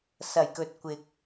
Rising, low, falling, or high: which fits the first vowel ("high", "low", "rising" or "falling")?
low